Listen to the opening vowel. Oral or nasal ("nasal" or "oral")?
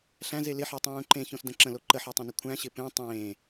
nasal